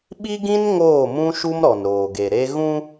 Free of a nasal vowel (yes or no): no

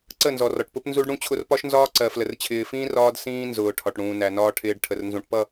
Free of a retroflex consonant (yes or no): no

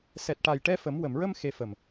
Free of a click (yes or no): yes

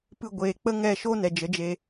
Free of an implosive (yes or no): yes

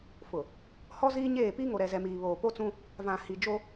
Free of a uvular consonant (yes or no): yes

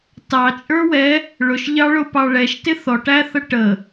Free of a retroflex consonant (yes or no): no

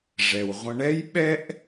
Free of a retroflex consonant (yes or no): no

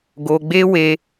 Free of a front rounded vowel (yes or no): yes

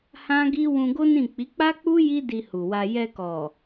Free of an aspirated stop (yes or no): yes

